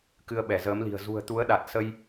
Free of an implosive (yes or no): no